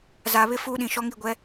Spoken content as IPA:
z a˨ β ɪ˦ f uː˦ ɗ ĩ˨ ʃ ɔ˦ ŋ i˦˨ ɡʷ ɛ˦

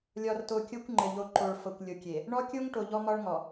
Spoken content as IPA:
lʲ ɒ˨ r t o˨ kʲ o˦ kʷ ŋ͡ǃ ɘ˨ ʎ o˨ ǃ o˨ ɭ f ɤ˨ kʷ lʲ o˨ kʲ e˨ | ɳ ɔ˦ kʲ o˦ ŋ ʈ o˨ ʎ ɔ˦ m ɒ˦ ɭ ŋ ɔ˨

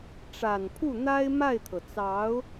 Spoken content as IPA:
ʈ͡ʂ a˨˩ n pʰ u˥˩ n̪ a˥ ɪ̯ m a˥˩ ɪ̯ t̪ʰ ɤ˩ t͡s ɑ˧˥ ʊ̯

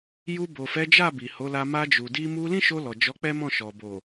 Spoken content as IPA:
j u˧ b o˨ f ɛ˨˦ d͡ʒ a˦˨ b i˨ h o˨˦ l a˧ m a˧ d͡ʒ u˨ d i˧ m u˧ l ĩ˦ ʃ o˧ l ɔ˨ d͡ʒ ɔ˨˦ k͡p ɛ˦ m ɔ̃˦˨ ʃ ɔ˨ b o˨

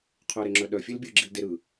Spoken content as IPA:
qʰ œ ɾ e ŋ͡ǁ œ ɗ œ fʲ e l bʲ ɯ ɡ͡ǁ i l d e ɾ ɯ

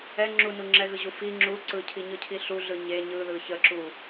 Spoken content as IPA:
ɛ ŋ͡ǁ u n u ŋ͡ǁ ɛ ɣ ɯ ʑ u f i ŋ͡ǁ u ǀ ɯ cʰ i ɲ ɯ cʰ i ɬ u ɮ ɯ ɲ e ɲ ɯ ð ɯ ç ə ǁ u

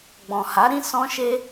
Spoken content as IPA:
ɡ͡b ɔ̃˨ h a˨˦ ɾ ĩ˦ s ɔ̃˦ ʃ e˦

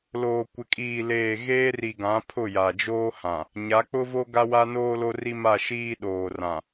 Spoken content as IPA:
l oː˨ kʷ ɪ˨ kʼ iː˨ l eː˨ ɣ eː˦ r i˨ ɡ ã˨˦ pʰ ʊ˦˨ j a˨ d͡ʒ oː˦ h ã˨ | ɲ a˨˦ k͡p ʊ˦ v o˦ ɡ a˦ w a˦ n oː˦ l o˦ r i˦ m a˦˨ ʃ iː˦ ɗ oː˨ r ã˨

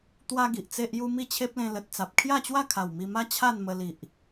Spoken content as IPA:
t̪ w a˦ ɡ i˨ ʔ t͡s e˦ ʔ j u˦ m i˥˧ t͡ɕʰ e˦ p̚ l ẽ˧ l ə˨ t̚ t͡s a˨ p̚ kʰ j a˥˧ t͡ɕ w a˥˧ kʰ a˨˩ w m i˧ m a˦ t͡ɕʰ a˥˧ n m ə˧ l i˨ ʔ

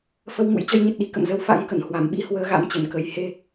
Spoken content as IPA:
f ə˧ w ŋ ṵ˧˥ j t͡ɕ ə˧ j ɲ ə˨˩ t̚ ɗ i˨˩ k ə̰˧˨ m z ə˧ w f a̰˧˥ ŋ k ə˧˩ n h w a˧˩ m ɓ ḭ˧˥ h w əː˨˦ ɣ a̰˧˥ m t͡ɕ ə˧˩ n k ə˨˩ j h e˧

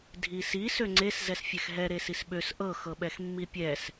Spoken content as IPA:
dʱ i s i s ø ŋ͡ǀ e s z ɛ s fʲ ɛ x ɦ ɛ ɾ e s i s ɓ ø s ʔ ɤ x ɤ ɓ ɛ x mː i pʲ ɛ s

